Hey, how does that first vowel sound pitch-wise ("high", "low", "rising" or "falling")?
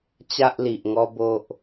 high